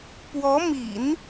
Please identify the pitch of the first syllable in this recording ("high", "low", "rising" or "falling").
rising